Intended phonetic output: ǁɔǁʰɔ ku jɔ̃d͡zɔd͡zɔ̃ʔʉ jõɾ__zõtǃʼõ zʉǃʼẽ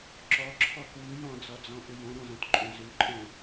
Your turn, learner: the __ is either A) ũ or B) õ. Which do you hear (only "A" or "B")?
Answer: B